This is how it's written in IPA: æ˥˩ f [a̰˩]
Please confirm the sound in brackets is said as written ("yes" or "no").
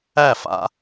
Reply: no